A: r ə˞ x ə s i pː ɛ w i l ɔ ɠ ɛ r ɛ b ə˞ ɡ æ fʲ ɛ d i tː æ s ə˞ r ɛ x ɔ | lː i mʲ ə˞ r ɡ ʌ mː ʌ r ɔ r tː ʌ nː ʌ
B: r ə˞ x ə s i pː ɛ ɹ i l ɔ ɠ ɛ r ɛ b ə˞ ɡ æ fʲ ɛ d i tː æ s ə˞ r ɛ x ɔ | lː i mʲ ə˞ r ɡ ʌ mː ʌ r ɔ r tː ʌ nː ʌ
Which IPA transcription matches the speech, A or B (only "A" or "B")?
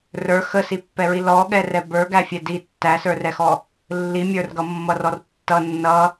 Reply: B